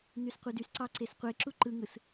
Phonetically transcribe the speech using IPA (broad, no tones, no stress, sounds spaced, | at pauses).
n y s qʷ ɯ d y s ǀ ɑ ǀ e s qʷ e ǁ u ǃ ɯ ŋ ɯ s